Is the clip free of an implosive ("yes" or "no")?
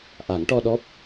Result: no